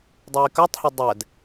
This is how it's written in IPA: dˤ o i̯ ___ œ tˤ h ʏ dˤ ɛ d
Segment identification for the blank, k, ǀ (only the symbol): k